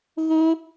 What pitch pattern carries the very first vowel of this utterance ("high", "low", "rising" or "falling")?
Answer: high